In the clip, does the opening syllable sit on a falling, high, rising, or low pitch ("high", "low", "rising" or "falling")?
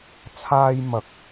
high